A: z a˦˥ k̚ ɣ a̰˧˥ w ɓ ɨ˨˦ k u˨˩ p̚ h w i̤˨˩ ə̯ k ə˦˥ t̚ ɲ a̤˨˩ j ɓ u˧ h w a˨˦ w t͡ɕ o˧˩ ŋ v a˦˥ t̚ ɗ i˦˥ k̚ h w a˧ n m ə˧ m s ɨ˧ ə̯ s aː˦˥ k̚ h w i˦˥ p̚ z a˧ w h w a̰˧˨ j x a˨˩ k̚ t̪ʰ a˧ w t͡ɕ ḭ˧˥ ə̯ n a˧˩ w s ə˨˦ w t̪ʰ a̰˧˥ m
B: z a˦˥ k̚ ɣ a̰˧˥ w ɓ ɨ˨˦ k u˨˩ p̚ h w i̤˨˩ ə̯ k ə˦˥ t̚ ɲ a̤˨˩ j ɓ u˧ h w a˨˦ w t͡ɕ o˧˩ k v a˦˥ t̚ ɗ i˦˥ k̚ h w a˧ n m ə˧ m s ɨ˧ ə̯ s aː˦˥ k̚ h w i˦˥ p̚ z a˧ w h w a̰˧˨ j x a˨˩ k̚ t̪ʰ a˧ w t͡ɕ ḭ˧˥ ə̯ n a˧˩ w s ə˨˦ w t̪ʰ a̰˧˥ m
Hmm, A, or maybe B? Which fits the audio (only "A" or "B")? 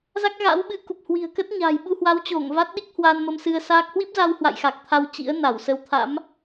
A